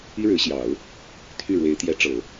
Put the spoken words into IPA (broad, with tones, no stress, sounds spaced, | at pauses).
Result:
i˥ ɻ ɻ̩˧˥ ɕ j ɑ˨˩˦ ʊ̯ | t̪ʰ y˥˩ ɻ w e˧˥ ɪ̯ t̪ j ɛ˧˥ ʈ͡ʂ ɤ˨˩˦